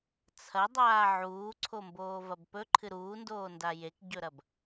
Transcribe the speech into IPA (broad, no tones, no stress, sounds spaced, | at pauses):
t͡sʰ ɐ dˤ aː ʕ uː ǀʰ o m b oː v ɐ b p ɵ ǃʰ ɨ ɾ uː n d oː n d a j e k ɟ ɵ ɾ ɐ b